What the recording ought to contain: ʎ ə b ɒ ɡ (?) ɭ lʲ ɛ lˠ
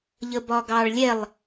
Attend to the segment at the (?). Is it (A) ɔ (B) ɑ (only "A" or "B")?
B